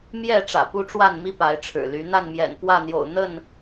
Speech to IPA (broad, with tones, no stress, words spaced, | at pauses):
mjɛ˥˨ ʈ͡ʂä̰˨˩pu˦ʈ͡ʂwa˥˨nmi˦ pa˨˦ɪ̯ʈ͡ʂʰɻ̩˨˩ly˨˦ n̪a˥˨nmjɛ̰˨˩npwä˥˨n̪jo̰˨˩ʊ̯ n̪ə˥˨n